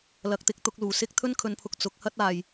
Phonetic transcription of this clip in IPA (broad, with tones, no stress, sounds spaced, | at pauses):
l ɐ˨˥ k̚ t̪ ɪ˨˥ k̚ t̪ ʊ˨˥ k̚ l uː˨˩ s ɪ˥ k̚ t̪ʰ ɵ˥ n kʰ ɵ˨˧ n pʰ ʊ˨ k̚ t͡s ʊ˨˥ k̚ h ɐ˥ t̚ aː˨ j